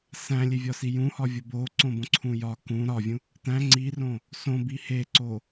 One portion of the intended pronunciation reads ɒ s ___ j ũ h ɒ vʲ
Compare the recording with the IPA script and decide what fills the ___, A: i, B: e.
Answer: A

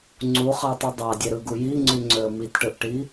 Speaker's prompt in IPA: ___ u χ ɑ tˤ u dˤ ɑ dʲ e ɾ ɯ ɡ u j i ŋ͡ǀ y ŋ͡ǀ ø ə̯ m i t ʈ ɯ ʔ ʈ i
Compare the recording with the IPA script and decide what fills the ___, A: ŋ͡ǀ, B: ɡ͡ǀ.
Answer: A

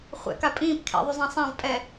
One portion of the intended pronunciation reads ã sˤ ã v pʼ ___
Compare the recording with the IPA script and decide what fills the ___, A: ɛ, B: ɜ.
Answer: A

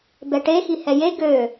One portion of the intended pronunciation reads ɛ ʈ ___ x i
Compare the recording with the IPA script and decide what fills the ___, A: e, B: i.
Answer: A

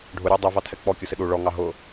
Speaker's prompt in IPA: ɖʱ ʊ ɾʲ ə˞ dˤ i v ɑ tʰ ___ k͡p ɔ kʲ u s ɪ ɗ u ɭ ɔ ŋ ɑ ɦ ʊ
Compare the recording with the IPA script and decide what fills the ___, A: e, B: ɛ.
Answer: B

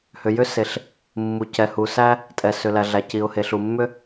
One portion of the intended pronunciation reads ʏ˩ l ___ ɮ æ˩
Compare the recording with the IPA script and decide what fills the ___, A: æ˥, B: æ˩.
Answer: B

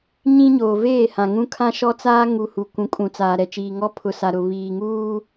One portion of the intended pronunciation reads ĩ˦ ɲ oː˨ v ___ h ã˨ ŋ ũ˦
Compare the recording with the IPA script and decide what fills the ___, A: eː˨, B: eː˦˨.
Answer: B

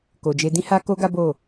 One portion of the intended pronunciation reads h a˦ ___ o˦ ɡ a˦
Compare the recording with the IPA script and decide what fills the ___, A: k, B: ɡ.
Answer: A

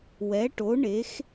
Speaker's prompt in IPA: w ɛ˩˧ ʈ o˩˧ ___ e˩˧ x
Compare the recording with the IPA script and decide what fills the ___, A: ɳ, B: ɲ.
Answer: A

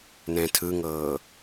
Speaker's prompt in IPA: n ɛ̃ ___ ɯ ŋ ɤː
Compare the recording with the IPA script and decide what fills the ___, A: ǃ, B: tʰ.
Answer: B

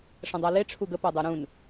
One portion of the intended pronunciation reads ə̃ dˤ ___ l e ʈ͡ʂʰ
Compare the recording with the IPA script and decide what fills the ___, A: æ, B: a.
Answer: B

